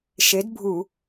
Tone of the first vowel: rising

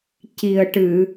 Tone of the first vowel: low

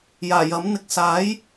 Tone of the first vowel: low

